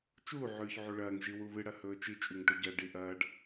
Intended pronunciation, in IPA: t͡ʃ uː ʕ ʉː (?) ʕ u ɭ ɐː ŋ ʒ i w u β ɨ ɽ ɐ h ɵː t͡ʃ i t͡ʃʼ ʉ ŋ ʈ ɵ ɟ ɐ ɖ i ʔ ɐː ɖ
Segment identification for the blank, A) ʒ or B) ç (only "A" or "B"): B